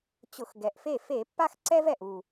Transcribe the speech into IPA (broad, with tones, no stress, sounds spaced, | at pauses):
t͡ɕ ʊ˧˩˧ x ɡ ɛ˨˩ ʔ f e˥˩ f e˧˩˧ pː a˦ x ǀ ɛ˦ v ɛ˨˩ ʔ u˨˩